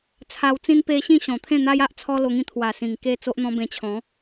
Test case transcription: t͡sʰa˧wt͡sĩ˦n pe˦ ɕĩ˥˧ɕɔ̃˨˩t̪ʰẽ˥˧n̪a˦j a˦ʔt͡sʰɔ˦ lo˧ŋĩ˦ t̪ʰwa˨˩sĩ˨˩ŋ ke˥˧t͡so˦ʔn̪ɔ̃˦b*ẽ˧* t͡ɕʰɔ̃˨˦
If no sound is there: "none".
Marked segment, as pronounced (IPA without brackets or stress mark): ẽ˧